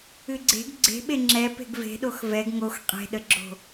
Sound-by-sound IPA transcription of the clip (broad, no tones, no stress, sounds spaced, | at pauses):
ɨ ɡ͡ǀ e̤ ɡ ɡ͡ǀ e̤ ɓ e ŋ͡ǁ ɛ p e̤ ɡ v e̤ ɗ o x v ɛ ɡ ŋ o x qʼ e̤ ɗ ə ɡ͡ǁ o̤